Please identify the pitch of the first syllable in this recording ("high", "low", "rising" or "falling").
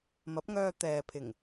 rising